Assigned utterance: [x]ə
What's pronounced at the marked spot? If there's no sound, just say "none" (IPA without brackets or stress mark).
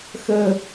x